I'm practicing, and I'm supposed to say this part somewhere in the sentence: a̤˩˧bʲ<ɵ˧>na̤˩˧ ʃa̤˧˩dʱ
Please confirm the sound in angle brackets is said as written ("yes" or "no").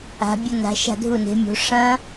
yes